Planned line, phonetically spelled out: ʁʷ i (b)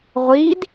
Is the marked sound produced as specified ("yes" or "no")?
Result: no